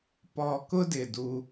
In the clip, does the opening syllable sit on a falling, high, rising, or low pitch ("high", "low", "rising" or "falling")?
high